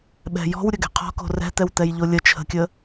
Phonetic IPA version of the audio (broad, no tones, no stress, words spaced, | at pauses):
ɓɛ̤jɔ̤w ɾʲəɡɛ̤qʰɔ̤ko̤ rɛ̤t̪ɛwt̪ɛjʎo lʲə t͡ʃʰə̤kʲə